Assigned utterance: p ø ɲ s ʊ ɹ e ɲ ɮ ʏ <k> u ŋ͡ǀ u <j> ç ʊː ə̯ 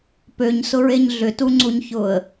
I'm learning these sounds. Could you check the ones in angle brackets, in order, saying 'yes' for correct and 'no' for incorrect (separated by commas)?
no, no